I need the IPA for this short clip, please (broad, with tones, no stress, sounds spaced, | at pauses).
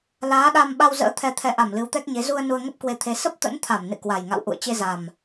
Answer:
l aː˨˦ ɗ a˧ m ɓ a˧ w z ə̰ː˧˥ t̪ʰ ɛ˨˩ t̪ʰ ɛ˨˩ ʔ a˧˩ m l ɨ˨˦ w t̪ ɛ˦˥ k̚ ɲ e˨˦ z u˧ ə̯ n u˧ ə̯ ŋ ə˦˥ p̚ k w e˧ t̪ʰ e˨˦ s ə˦˥ p̚ t̪ ə̰˧˥ n t̪ʰ a˧˩ m n ɨ̰˧˨ k w a˨˩ j ŋ a̰˧˨ w ʔ ṵ˧˨ ə̯ t͡ɕ e˧ z a˨˩ m